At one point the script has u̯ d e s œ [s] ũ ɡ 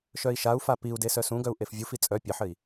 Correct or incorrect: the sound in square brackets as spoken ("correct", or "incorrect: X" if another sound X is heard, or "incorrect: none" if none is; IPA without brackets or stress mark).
correct